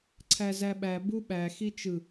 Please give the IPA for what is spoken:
ǀʰ æ z æ ɓ æ b u ɓ æ x i t͡ʃ ɯ

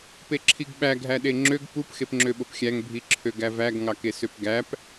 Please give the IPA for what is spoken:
p e ǁʰ i ɡ ɓ æ ɡʱ æ ɗ e ŋ͡ǁ ø ɡ p u p x e p ŋ͡ǁ ø ɓ o p xʲ æ ŋ bʱ i ǁʰ ø ɡ æ v æ ɡ ŋ ɑ k e s ø p ɡ æ p

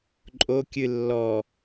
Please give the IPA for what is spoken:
ǃʼ o kʲ ɨ lː ɔ

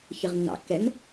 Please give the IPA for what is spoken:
ç ɨ ʁ nː ɑ̰ kː ɛ n

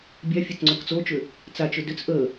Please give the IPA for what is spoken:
bʲ a fʲ a t͡s ŋ͡ǀ o k t͡s o t͡ʃ ʏ | t͡s a t͡ʃ ʏ d ʏ t͡s ʔ ə

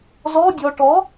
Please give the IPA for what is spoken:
z ɔ dʲ ɔ ʈ ɔ

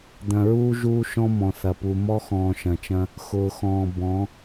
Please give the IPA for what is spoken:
d̪ ɐ̃˨ ɹ uː˦ ʒ uː˦ ʃ ɔ̃˦ m ɔ̃˨ θ ɐ˨ p u˨ m ɔ˦ x ɔ̃ː˨ ʃ ɐ̃˨ t͡ʃ ɐ̃˦ | x ʊː˨ x ɔ̃ː˨ b ɔ̃˨˦

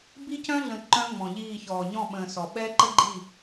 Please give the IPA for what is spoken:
b i˦ c œ̃˦ ɮ ə̃˨ ǃ œ̃˦ ŋ͡m ɔ̃˨ ʎ iː˦˨ ç ɔː˨ ɲ ɔ̃˦˨ ɓ ə̃ː˨ s ɔ˨ ɓ ɛ˦ ǃ ə˦ ɡ͡ǃ i˦˨

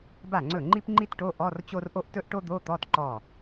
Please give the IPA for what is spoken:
b a˥˩ ŋ͡ǀ ɵ˥˩ ŋ͡ǃ i˥ p ŋ͡ǃ i˥ t ʈ o˧˥˧ ʔ ɔ˧˥˧ r t͡ɕ o˥ r ʔ o˥ ʔ t ɵ˥ ʔ ʈ o˥ d̪ o˧˥˧ t̪ ɔ˧˥˧ t ǃ ɔ˥˩

